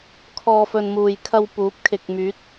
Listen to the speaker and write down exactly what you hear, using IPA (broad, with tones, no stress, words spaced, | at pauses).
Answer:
kʰɔː˨fɵ˨n muː˨jkʰɐ˧w puː˨˥p̚kʰɪ˨k̚myː˨˥t̚